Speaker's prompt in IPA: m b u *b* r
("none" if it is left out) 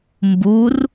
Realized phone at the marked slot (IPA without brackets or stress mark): none